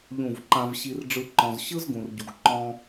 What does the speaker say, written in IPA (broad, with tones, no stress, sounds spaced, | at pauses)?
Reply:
ʎ ũ˦˨ v ǃ ã˦ v ɕ i˦ r ɖ͡ʐ ɯ˦ ǃ ɔ̃˧ z ɕ ɯ˦ z ɡ ũ˨ r ɟ u˨ ɡ ǃ ɔ̃˧